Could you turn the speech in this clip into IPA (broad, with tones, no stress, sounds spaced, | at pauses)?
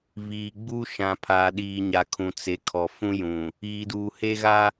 β iː˨ ɡ͡b u˦ ʃ ã˨ pʰ aː˨ ɗ iː˨ ɲ a˨ kʰ ũ˨ t͡s e˨˦ kʰ ɔ˨ f ũ˦ j ũ˨ | iː˨ d uː˨ h e˦ ɣ a˦